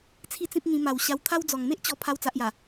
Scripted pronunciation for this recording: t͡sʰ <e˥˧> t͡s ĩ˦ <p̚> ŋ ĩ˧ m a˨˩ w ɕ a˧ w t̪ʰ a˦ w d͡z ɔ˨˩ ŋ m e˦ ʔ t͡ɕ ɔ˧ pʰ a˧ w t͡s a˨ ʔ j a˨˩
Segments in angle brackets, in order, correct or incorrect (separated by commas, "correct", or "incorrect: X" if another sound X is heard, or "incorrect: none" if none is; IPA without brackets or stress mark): incorrect: i˥˧, correct